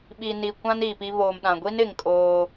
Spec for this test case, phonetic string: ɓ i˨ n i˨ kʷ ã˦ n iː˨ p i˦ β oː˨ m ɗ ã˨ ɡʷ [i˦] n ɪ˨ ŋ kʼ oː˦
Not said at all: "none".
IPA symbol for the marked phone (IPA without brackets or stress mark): i˦